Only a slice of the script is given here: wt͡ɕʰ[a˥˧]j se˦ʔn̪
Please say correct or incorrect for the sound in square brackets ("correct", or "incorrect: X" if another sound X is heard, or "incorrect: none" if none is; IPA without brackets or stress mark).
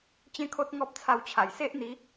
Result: incorrect: a˨˩